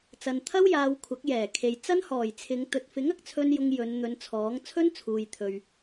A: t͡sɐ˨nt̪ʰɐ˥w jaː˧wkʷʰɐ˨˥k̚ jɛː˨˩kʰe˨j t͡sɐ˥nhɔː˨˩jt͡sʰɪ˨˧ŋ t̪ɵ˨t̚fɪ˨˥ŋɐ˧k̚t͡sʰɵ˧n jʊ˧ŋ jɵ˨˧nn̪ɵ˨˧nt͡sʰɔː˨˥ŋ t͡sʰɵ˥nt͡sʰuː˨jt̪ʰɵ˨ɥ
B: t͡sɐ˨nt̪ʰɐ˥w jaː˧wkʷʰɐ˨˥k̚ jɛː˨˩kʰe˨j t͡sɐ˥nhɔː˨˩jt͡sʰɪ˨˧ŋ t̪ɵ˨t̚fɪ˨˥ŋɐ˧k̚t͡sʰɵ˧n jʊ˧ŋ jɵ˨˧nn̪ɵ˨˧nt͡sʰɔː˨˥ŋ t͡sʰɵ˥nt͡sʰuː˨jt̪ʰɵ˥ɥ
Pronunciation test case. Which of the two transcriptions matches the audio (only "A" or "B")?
A